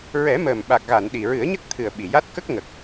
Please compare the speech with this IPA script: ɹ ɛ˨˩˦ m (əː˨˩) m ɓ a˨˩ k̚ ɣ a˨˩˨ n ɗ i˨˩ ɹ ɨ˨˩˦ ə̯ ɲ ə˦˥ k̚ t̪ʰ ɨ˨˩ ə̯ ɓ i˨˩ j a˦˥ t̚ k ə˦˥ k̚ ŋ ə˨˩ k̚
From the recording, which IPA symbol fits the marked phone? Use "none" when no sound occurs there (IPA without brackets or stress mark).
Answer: əː˨˩